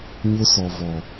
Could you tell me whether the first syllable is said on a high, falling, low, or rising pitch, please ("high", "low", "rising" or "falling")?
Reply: high